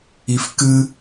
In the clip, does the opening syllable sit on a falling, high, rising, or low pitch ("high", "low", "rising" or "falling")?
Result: low